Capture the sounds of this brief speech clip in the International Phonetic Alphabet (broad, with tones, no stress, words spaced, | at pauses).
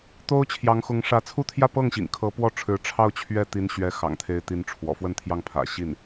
t̪o˥ʊ̯t͡ɕʰjɑ˧˥ŋxʊ˧˥ŋʂä˧˥ t͡sʰu˥˧t̪ʰjä˥˧pɤ˥˩ŋɕḭ˨˩ŋ kʰɤ˧˥pwɔ˥˩ ʈ͡ʂʰɻ̩˧˥ ʈ͡ʂʰɑ˥˧ʊ̯t͡ɕʰɥɛ˥˩t̪i˧˥nɕɥɛ˧˥ xɑ̰˨˩ŋt̪ʰe˧˥ɪ̯t̪i˧˥n ʈ͡ʂʰwɔ̰˨˩ fwə˥˧nt̪ʰjɑ˥˩ŋ pʰä̰˨˩ ɕi˥˩n